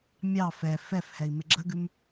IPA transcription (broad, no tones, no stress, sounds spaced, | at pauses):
mʲ ɑ f ɛ f ɛ f h ɛ i̯ m ɪ ɡ͡ǁ ə ɡ ʉ m